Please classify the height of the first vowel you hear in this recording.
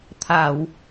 low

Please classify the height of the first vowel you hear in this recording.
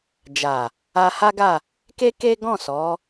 low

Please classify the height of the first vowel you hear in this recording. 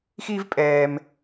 high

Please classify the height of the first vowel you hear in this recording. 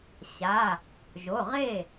low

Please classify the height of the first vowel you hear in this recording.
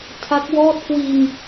low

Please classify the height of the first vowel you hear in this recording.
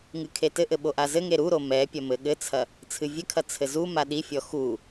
high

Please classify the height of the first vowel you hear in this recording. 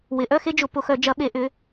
high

